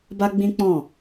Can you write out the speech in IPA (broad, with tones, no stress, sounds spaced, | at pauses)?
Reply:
b a˦ ɡ͡b ĩ˦ k͡p ɔ̃˦˨